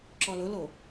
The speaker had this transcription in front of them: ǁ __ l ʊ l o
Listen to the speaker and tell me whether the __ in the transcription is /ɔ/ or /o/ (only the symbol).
ɔ